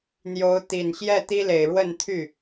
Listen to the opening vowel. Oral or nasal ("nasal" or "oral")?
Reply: oral